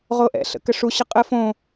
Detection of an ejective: present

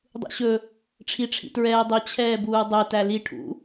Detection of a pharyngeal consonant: absent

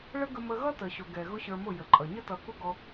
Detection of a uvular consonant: absent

